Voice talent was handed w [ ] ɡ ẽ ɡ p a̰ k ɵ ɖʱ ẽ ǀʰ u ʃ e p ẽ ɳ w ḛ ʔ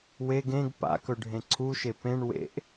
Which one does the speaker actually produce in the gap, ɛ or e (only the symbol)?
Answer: e